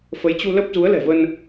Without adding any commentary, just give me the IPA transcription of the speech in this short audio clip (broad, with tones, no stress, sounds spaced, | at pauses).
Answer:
f ə˨˦ j t͡ɕ u˧ l ə˦˥ p̚ z u˨˦ ə̯ l ɛ̤˨˩ v ə˧ n